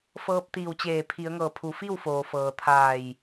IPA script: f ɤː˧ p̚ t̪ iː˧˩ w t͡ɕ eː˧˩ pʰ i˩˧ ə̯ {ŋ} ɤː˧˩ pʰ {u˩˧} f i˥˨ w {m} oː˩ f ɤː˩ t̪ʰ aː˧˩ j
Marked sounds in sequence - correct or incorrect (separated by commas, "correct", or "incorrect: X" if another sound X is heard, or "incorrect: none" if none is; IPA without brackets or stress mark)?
correct, correct, incorrect: f